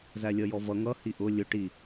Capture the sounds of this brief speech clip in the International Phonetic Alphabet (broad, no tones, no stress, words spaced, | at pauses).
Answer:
zælʲʌjɔvʌ ŋʌ hiʔʊ lʲʊ ʈi